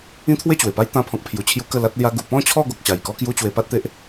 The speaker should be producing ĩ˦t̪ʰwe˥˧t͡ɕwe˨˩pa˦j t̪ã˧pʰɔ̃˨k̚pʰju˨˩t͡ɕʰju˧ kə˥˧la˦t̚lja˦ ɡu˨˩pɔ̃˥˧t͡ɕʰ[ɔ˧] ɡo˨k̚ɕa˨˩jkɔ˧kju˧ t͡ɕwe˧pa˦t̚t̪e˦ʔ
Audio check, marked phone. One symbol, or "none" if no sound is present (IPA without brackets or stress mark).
ɔ˥˧